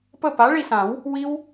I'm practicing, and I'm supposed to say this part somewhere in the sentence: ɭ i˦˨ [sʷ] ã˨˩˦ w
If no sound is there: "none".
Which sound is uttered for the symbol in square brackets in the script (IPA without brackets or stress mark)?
s